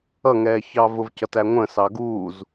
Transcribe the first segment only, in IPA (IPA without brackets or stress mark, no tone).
ʌ